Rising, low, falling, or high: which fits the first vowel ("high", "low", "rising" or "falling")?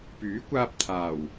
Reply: rising